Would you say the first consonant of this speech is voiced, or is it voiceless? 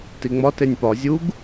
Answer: voiceless